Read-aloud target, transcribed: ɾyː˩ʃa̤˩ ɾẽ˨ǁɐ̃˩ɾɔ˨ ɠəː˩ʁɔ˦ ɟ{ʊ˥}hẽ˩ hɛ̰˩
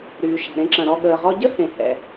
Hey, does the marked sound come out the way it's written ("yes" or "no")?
no